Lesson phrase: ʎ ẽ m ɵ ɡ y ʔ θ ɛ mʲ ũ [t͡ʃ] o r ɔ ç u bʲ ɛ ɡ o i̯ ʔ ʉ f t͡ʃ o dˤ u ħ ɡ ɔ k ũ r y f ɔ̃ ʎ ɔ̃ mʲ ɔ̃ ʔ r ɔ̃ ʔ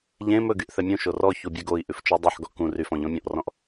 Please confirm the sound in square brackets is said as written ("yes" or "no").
no